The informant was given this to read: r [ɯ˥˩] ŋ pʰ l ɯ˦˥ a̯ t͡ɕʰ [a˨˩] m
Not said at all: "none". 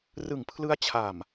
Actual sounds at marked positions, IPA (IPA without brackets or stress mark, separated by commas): ɯ˨˩, a˨˩